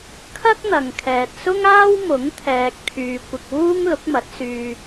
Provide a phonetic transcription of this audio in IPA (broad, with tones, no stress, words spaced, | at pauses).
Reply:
kʰɐ˥k̚n̪ɐ˨ŋ kʰɛː˨t̚sʊ˥ŋaː˥w mʊ˨˥ŋ t̪ʰɛː˧k̚t̪ʰyː˧ kʷɪ˧k̚wuː˥ŋ lʊ˨˥k̚mɐ˨˥t̚ syː˧